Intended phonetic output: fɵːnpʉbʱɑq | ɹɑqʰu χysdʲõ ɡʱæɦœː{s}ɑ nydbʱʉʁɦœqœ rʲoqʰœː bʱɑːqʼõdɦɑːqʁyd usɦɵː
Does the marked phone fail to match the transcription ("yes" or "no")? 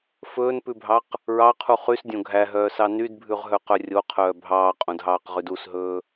no